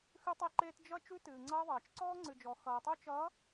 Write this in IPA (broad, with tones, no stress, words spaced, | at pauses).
xʉ˦tˤe˦ǃeː˦t d͡ʒʌ˦ t͡ʃʉ˦tɨː˨ŋ͡ǀʌː˦ðˤʌː˨t͡ʃ ǀɔː˦ŋ͡ǀɨ˨d͡ʒɔ˨ xʌː˨tˤo˦t͡ʃʌː˨˦